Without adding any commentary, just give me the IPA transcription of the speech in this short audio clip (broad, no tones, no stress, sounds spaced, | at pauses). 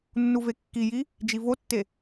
nː u v e kː i j i | d͡ʒ i v o tː e